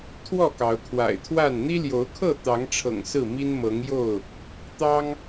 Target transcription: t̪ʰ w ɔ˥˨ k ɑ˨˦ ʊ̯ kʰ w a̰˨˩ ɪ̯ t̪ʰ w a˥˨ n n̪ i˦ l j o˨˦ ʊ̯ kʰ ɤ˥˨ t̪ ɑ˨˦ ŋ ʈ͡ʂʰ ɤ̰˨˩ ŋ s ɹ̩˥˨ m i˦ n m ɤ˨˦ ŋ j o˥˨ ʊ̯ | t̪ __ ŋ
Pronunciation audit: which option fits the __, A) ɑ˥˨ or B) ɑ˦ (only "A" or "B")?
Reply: B